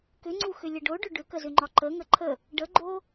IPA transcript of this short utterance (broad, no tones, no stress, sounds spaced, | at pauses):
k ʏ ŋ͡ǀ u x ʏ lʲ ə ɖ o ɖ ʏ ɖ ʏ k ə z ʏ ŋ͡ǃ ɒ ǃ ə ŋ ə ǃʰ ə | ɖ ə ɡ͡ǃ o